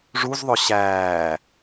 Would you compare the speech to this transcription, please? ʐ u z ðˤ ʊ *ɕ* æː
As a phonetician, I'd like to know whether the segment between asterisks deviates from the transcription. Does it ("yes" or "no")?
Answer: no